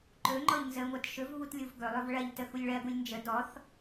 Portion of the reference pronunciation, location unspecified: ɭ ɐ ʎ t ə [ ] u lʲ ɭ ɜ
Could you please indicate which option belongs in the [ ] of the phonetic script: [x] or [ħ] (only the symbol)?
x